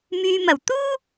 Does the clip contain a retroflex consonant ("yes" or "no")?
no